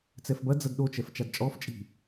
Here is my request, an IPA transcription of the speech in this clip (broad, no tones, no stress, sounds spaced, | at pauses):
t͡s ɛ f b ɐ d͡z ɐ d ɗ o t͡ʃ ɛ f t͡ʃ a d t͡ʃʼ ɔ f t͡ʃʼ i̤